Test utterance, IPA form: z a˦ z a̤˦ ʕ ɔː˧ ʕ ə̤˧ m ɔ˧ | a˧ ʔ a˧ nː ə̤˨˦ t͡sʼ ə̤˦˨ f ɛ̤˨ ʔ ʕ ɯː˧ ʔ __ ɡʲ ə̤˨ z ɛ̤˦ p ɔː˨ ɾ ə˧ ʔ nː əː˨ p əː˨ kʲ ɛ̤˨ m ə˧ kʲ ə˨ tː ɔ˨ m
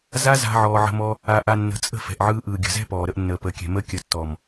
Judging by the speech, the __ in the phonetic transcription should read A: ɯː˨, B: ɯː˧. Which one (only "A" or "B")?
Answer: A